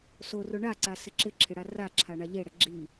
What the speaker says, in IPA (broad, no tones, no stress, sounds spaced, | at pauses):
s o r ʊ ɳ a ǀ a s ɪ ǁ ɪ ǁʰ ɪ ɽ a r a ǁʰ a ɳ a ʎ e ɽ ɛ ɡ͡ǁ i